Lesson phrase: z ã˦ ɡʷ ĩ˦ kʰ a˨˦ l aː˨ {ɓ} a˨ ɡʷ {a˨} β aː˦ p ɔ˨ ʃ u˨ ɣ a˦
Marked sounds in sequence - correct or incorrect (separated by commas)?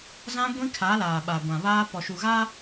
correct, incorrect